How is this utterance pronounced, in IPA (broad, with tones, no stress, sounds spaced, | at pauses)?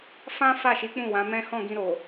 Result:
f ã˦ f a˦˨ ʃ i˨˦ k͡p ũ˦˨ w ã˨˦ m ɛ̃˦ h ɔ̃˦˨ ɡ ĩ˧ ɾ o˨